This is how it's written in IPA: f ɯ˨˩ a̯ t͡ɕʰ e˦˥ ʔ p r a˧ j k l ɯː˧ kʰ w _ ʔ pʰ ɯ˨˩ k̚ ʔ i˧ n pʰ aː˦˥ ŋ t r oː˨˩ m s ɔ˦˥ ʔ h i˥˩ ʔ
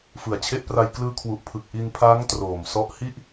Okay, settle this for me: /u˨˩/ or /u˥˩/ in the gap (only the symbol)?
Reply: u˨˩